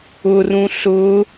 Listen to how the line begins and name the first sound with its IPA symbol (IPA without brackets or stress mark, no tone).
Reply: ʊ